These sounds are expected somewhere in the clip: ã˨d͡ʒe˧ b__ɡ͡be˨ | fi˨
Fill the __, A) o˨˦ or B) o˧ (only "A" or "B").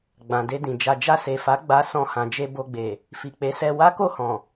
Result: B